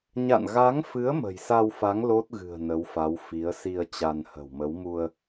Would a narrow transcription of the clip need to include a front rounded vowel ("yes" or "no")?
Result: no